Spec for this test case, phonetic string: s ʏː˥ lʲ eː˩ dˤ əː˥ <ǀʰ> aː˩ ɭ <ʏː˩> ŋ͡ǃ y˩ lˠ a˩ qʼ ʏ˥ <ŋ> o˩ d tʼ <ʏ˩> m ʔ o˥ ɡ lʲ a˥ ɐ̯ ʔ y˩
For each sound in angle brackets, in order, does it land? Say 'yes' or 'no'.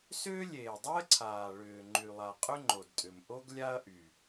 yes, yes, no, yes

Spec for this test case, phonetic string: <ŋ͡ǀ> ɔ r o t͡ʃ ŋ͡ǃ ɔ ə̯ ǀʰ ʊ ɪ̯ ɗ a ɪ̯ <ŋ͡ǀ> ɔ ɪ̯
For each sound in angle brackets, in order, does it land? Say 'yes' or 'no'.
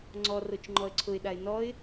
yes, no

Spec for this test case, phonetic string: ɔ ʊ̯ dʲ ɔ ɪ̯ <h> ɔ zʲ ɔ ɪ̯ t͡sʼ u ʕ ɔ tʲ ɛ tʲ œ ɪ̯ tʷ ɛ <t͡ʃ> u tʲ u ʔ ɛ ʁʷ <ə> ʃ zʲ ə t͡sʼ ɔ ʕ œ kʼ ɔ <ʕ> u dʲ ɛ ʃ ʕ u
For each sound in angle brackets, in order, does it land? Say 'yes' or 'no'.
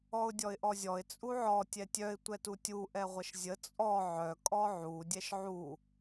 no, no, yes, yes

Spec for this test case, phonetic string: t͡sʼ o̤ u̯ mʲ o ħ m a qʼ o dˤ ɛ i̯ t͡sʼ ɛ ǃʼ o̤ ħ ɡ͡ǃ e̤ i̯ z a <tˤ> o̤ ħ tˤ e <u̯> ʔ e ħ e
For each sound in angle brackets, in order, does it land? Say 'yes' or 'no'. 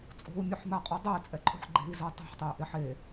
yes, yes

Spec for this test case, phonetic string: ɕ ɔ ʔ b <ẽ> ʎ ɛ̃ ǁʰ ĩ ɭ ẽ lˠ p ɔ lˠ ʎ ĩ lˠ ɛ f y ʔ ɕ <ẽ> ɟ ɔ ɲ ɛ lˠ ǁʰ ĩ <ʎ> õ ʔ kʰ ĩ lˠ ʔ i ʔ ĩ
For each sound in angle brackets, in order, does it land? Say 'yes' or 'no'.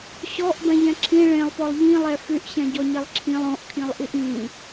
no, no, no

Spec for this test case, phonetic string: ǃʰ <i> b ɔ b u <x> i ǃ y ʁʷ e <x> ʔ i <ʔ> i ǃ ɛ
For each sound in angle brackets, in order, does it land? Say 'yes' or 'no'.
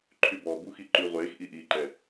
no, yes, yes, yes

